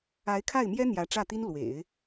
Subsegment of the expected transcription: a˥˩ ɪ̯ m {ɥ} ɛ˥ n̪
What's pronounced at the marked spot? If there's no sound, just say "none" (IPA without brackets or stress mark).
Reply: j